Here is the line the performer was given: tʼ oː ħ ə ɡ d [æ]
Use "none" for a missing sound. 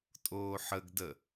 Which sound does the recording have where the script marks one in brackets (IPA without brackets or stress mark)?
ə